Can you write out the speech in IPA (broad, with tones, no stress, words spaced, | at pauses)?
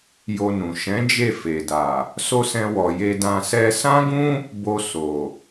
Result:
jo˧nũ˨ ʃɛ̃˨˦ d͡ʒe˦˨fe˨da˨ | so˦sɛ̃˧wɔ˨je˧ dã˧sɛ˦ sã˦ɡũ˦ | bo˧ so˨